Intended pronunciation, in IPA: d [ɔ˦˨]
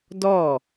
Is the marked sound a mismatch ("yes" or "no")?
no